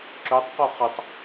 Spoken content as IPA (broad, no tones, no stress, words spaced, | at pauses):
ǁøtˤqo χətˤ